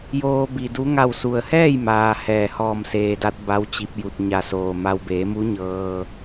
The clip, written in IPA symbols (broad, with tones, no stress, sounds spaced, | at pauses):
j oː˧ b i˩ d u˧˥ ŋ a˧˩ w s u˩ ə̯ h ɛː˥˨ j m aː˩ h ɛː˧˩ h ɔː˧˩ m s eː˩ d a˧˥ t̚ b a˧˥ w t͡ɕ i˧ p̚ j u˧˩ t̚ ɲ a˧˩ s oː˩ m a˧ w b eː˩˧ m u˧˥ ɲ ɤː˧